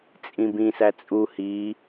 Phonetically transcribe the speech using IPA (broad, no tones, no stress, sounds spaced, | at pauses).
t͡sʼ ĩ b ĩ s æ t͡sʼ u h i